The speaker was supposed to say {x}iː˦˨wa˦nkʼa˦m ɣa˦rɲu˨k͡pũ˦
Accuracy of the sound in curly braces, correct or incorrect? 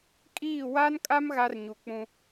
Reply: incorrect